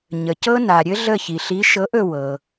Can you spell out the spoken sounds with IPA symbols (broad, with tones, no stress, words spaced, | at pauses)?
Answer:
ɲə˩cɤ˦na˩ɾʲɘ˦ ɮə˦˨çi˩ɬi˨˥ ʃɤ˨˥ʔɵ˦˨ wɤ˩